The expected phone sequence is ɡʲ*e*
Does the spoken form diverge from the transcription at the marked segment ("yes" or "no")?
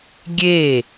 no